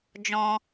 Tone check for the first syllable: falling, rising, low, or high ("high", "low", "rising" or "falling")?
high